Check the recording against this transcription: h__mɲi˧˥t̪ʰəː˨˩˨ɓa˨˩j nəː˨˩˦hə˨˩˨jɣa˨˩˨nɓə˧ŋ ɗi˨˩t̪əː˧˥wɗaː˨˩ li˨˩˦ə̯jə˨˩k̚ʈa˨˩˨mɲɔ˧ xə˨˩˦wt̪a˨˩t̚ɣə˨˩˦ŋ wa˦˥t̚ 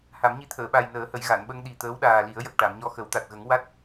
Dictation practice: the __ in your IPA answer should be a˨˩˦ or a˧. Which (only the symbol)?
a˨˩˦